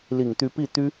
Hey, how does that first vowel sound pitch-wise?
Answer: low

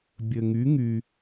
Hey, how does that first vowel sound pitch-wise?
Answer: low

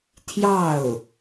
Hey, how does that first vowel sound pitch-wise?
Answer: falling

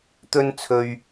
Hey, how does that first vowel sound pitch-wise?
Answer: high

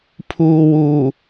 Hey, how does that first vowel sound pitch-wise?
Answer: low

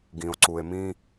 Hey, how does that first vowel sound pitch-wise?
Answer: low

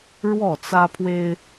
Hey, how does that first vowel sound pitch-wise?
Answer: falling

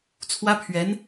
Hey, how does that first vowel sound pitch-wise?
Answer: high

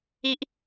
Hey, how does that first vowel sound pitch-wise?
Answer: high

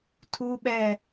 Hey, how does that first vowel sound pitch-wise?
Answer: high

